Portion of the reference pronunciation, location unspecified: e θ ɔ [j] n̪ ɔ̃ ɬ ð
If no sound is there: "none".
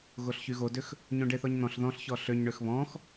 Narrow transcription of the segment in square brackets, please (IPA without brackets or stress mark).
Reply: ɲ